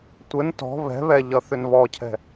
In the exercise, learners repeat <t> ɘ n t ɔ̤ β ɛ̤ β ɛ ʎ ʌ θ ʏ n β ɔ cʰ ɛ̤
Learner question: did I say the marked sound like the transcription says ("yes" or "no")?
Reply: no